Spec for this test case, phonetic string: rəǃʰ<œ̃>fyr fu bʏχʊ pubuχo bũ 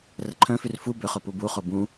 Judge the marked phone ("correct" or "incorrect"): correct